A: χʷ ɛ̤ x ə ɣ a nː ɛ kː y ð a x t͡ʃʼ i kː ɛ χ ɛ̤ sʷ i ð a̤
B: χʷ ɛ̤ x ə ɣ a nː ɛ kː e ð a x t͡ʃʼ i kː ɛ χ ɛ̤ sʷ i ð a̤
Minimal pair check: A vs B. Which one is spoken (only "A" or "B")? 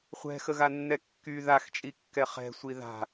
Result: A